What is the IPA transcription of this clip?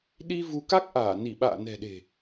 ɗ i˧ v u˨˦ k a˦˥ k̚ ʔ aː˧˩ n i˧˩ ɓ a̰ː˧˨ n ɛ̤˨˩ ɗ e̤˨˩

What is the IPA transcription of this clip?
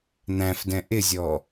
n̪ æ̃ f d ɛ̃ ʔ ɪ zʲ ɔ

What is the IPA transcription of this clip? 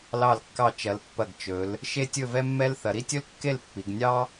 l ɑ˧˩ l kː ɑ˧˩ t͡ʃ ɐ˩˧ l pː ɐ˧˩ ɡ t͡ʃ ɵ˩˧ l | ʃ e˥ tʲ ɵ˥˧ v ɛ˥ mː ɛ˥ l θ ɐ˩˧ ɾ i˥ tʲ ɵ˥ l kː e˥˧ l pː i˩˧ ɡ nʲ ɑ˥

